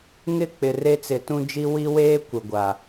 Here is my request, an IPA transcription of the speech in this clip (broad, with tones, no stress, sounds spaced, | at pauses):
ŋ ɪ˦ k͡p ɪ˨ r e˦ t͡s ɪ˨˦ t ũ˦ d͡ʒ i˦ w i˦ w eː˦ kʷ ɪ˨ ɡʷ a˨